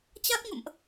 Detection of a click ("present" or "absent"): absent